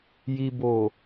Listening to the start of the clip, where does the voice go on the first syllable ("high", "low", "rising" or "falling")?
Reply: low